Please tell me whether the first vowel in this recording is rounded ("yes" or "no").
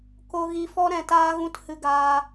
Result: yes